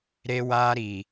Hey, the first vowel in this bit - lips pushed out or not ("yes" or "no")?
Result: no